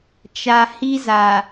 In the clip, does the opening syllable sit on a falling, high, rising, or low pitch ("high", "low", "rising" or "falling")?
low